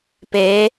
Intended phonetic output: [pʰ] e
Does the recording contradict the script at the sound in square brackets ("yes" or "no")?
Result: yes